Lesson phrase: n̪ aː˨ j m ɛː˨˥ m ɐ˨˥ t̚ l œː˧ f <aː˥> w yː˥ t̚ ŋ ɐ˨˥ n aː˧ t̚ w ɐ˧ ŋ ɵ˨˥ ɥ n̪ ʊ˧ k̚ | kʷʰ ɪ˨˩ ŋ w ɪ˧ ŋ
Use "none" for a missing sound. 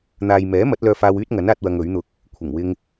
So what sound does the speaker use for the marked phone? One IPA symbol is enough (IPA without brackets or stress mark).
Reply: aː˧